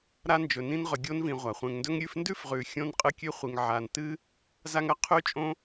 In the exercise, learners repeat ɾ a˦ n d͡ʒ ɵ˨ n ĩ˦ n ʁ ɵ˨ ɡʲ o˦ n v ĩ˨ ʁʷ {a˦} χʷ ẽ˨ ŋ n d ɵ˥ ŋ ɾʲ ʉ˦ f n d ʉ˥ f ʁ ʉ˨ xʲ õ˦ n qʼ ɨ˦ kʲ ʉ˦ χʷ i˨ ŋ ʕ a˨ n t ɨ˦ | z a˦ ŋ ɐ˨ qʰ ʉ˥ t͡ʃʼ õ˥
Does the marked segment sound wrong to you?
yes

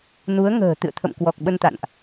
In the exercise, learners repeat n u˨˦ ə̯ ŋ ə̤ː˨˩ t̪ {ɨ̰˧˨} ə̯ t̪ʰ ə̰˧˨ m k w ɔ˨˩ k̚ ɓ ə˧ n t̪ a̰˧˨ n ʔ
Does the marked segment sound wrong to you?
no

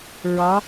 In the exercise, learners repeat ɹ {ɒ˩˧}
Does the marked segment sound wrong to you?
no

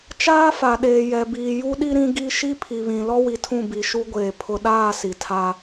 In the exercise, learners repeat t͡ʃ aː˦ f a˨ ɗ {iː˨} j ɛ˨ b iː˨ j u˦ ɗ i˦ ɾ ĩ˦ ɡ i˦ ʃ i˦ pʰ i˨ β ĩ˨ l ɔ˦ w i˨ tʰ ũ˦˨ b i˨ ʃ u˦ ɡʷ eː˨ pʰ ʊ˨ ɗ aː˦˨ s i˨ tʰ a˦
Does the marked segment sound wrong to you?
yes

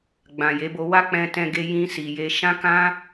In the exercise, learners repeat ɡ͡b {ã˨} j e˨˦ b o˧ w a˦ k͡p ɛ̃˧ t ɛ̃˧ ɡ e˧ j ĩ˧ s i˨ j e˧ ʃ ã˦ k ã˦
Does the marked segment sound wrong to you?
no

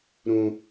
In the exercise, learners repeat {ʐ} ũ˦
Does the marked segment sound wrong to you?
yes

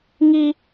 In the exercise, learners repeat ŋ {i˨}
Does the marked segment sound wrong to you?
yes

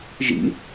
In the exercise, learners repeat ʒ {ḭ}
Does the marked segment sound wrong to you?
no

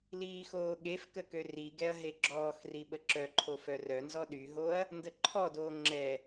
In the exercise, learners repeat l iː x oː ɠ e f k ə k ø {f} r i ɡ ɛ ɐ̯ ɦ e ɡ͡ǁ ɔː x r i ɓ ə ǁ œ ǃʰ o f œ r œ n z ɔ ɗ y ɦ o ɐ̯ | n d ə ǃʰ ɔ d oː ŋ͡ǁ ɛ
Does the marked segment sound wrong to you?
yes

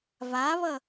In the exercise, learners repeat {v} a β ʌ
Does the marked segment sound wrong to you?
no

